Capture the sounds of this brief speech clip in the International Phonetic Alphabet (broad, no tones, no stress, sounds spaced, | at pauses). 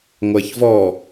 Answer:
ŋʷ ɐː ç v ɔ